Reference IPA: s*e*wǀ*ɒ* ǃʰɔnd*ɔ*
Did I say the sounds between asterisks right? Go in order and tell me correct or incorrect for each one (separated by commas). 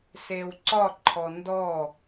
correct, correct, correct